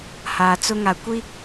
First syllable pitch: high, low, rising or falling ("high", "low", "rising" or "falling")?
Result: low